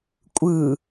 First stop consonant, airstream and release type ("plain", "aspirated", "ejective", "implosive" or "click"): ejective